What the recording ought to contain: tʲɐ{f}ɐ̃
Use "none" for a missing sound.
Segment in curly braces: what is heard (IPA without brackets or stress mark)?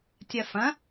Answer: f